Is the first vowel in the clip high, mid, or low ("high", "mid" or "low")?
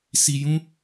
high